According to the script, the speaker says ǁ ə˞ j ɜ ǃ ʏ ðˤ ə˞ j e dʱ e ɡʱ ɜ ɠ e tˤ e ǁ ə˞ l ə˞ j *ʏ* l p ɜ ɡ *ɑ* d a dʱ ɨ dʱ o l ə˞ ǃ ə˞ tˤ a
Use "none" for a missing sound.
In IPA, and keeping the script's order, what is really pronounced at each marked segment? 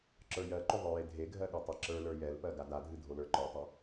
ɛ, a

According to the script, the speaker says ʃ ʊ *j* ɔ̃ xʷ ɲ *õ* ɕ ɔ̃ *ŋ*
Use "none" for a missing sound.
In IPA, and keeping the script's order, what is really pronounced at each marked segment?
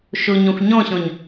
ɲ, ɔ̃, ɲ

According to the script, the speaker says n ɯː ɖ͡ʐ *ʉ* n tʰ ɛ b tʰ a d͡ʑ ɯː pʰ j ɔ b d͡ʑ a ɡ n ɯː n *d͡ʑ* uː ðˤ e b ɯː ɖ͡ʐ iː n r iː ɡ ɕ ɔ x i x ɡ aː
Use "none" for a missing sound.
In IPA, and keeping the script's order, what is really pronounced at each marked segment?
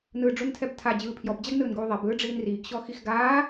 u, ɡ

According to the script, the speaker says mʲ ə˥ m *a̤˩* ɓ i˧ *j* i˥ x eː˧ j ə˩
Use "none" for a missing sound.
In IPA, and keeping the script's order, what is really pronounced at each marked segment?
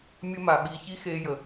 a˩, ç

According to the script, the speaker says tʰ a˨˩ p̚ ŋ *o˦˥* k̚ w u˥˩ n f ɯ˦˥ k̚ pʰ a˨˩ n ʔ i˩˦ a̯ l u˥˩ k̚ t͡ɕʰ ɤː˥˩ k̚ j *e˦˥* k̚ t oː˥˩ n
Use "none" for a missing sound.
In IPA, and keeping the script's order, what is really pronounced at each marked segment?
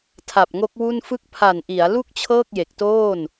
o˦˥, e˨˩

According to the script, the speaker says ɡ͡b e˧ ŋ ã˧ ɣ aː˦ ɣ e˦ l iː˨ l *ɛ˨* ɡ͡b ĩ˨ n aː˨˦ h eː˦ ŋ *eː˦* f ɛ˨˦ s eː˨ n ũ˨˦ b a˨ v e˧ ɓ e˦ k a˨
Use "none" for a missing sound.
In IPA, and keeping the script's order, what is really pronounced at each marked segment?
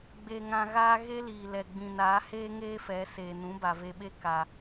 ɛ˨, eː˦

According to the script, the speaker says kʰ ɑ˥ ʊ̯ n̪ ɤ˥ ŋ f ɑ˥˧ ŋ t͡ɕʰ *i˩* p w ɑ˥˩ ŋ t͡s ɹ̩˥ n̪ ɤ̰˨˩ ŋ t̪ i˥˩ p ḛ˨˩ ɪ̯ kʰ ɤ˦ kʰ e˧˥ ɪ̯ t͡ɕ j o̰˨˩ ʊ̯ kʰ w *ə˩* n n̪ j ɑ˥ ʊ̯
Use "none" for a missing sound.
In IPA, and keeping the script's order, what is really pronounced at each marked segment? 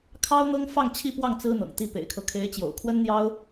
i˥˧, ə˥

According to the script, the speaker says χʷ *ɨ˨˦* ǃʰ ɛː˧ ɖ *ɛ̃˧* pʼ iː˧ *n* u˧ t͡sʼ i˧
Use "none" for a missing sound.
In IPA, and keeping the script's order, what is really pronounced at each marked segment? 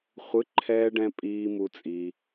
ɨ˨˦, ɛ̃˧, m

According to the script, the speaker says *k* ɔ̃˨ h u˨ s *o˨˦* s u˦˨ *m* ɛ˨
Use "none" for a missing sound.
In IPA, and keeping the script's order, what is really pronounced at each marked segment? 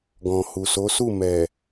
ɡ, o˨˦, m

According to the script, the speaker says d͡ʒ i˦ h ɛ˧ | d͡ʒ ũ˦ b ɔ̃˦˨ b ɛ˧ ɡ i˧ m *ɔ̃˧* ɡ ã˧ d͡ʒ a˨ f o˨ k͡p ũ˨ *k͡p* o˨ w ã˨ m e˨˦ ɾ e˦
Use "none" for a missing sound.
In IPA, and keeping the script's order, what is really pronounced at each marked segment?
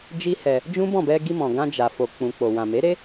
ɔ̃˨, k͡p

